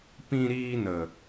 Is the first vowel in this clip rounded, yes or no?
no